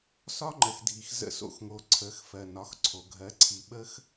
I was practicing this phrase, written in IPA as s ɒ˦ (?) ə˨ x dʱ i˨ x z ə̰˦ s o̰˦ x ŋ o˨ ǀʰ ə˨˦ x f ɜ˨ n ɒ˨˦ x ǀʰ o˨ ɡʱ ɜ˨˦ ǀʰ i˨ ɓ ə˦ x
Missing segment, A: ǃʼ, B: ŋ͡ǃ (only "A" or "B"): B